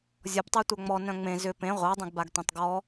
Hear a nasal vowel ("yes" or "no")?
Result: yes